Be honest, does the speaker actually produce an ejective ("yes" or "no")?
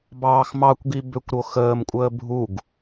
yes